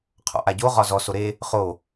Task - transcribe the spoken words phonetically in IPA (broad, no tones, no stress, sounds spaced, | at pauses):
qʰ ɔ̰ ʔ a ɟ o ʁ ɒ z ɔ s o ɾ e | χ o